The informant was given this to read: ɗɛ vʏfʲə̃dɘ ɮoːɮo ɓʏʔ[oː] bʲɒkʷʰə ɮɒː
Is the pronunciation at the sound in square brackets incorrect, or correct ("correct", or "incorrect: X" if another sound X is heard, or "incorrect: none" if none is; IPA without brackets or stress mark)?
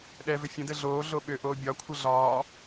correct